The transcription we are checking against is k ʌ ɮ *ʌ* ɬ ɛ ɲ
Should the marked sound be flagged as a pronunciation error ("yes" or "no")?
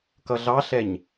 yes